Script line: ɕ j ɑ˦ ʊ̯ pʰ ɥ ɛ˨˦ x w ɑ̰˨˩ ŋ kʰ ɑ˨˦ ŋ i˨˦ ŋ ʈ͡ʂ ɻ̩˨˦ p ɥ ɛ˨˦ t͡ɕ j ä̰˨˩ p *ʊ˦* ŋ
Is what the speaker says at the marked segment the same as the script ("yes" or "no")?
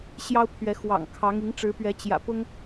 yes